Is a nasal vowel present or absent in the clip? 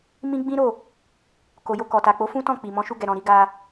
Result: present